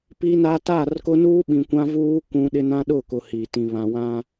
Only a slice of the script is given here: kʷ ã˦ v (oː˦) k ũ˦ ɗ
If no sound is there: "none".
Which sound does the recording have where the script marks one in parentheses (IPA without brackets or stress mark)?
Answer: uː˦